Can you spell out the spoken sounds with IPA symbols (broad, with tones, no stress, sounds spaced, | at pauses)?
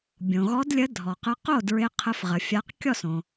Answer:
bʲ õ˩ ɣ ɔ˨˦ d lʲ ə˨˦ dʱ ɔ˩ q ə˨˦ q o˥˩ d ɹ ɪ˨˦ qʰ ə˨˦ f ʁ ə˩ fʲ a˨˦ q kʲ ɔ˥˩ s õ˩